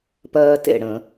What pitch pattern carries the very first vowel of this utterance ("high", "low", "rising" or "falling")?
high